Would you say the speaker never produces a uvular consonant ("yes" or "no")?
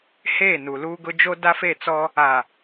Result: yes